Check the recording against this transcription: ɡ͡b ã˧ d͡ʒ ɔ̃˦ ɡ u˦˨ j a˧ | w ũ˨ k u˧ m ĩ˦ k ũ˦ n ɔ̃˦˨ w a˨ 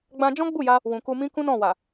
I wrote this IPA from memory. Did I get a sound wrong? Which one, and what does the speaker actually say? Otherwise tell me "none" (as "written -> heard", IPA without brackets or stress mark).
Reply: ɡ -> ɡ͡b